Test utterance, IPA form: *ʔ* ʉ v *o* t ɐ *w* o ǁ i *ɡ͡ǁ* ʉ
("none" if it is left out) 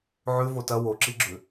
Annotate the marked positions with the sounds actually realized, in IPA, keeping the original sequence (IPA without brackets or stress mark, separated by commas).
ʕ, o, w, ɡ͡ǁ